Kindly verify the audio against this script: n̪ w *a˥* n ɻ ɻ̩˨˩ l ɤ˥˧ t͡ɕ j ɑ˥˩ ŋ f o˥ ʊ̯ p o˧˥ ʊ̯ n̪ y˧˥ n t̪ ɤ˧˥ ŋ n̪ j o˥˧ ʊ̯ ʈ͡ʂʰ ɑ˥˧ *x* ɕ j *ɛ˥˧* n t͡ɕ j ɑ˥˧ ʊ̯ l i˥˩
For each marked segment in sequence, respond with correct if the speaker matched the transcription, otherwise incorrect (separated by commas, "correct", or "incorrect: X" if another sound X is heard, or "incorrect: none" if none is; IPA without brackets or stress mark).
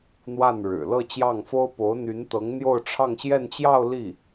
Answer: incorrect: a˥˩, incorrect: ŋ, correct